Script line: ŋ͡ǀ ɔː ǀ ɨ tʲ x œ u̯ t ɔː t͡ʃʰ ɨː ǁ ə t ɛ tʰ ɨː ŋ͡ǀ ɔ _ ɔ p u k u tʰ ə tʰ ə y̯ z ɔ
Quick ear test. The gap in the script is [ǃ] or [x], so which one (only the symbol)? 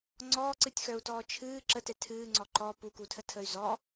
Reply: ǃ